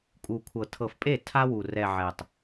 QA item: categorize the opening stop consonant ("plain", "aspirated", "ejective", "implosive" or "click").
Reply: ejective